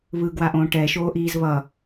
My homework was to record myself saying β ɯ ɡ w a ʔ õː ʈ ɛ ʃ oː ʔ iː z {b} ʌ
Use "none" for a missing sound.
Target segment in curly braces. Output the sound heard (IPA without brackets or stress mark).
β